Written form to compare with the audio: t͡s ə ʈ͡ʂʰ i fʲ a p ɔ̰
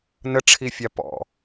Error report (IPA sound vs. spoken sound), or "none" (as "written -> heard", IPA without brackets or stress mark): t͡s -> n